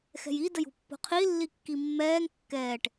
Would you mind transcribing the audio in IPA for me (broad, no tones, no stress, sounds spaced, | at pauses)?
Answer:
x ɛ̤ j i d ə j ṳ pː o̤ qʰ i lː i kː i mː ɛː ŋ kː ɛː ʈ